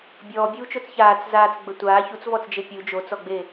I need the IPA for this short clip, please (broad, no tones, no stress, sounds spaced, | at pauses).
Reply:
bʲ ɔː bʲ uː t͡ʃ o t͡s ç aː t͡s z aː t͡s ɡ͡b ə tʷ aː ç u t͡s v ɔ t͡s d͡ʒ e pʲ u d͡ʒ o t͡s ɔ ɡ͡b e